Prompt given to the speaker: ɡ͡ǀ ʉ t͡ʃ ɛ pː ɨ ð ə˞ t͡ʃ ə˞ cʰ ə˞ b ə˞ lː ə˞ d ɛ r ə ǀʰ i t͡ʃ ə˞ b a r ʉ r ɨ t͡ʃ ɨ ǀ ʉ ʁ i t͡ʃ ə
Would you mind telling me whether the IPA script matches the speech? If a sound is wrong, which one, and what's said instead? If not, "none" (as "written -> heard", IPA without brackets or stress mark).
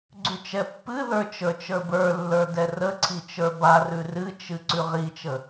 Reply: cʰ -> t͡ʃ